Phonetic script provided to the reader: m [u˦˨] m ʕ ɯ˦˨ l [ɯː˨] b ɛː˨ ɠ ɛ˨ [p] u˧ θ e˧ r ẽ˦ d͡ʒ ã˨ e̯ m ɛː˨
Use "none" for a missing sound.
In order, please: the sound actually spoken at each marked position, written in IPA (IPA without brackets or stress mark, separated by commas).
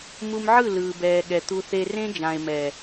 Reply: u˧, ɯː˨, t̪